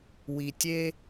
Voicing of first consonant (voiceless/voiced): voiced